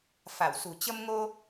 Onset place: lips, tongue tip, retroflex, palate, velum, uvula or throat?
lips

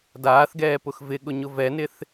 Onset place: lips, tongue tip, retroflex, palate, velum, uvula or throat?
tongue tip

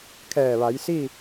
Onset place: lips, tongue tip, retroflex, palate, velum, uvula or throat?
velum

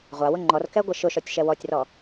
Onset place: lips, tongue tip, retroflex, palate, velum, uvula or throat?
uvula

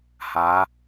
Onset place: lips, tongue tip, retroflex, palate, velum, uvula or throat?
throat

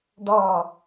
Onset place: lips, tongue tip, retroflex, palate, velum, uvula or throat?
retroflex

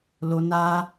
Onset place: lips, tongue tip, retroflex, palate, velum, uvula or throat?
tongue tip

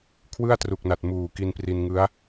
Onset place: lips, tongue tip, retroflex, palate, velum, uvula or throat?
velum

